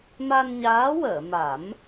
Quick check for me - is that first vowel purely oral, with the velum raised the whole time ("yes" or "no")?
yes